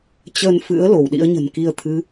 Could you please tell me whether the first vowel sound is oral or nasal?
oral